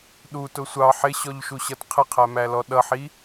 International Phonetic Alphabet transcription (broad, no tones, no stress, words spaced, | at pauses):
ɗutʊ sʷɑ ħɪɕɔʎʃuɕʌt qʰɪqʰæmælɔ ɗʌħi